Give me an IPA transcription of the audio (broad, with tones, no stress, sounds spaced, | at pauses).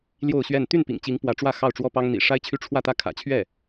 l j o˥˧ ʊ̯ ɕ ɥ ɛ˥˧ n t̪ y˥˩ n p ḭ˨˩ ŋ t͡ɕ i˧˥ ŋ p w ä˧˥ ʈ͡ʂ w ä˥˧ x ɑ˥˩ ʊ̯ ʈ͡ʂ w ɔ˥ p ɑ˥ ŋ n̪ ḭ˨˩ ʂ a˥ ɪ̯ t͡ɕʰ y˥˧ ʈ͡ʂʰ w ä˥˧ t̪ ä˥˩ kʰ ä̰˨˩ t͡ɕʰ ɥ ɛ˥˩